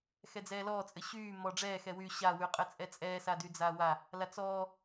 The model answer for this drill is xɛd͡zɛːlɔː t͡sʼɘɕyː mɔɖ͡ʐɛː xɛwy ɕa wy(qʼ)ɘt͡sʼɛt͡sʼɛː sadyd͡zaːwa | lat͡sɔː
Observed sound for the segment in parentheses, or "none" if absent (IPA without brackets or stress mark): qʼ